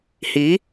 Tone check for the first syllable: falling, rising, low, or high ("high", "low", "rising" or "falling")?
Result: rising